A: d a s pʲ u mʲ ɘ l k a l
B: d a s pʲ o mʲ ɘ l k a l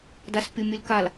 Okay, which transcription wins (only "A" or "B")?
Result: B